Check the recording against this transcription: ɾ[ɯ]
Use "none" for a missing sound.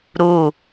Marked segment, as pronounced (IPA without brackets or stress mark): u